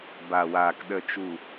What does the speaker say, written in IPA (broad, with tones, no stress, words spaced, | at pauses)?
ba˨waː˨k ɗə˨t͡ʃu˨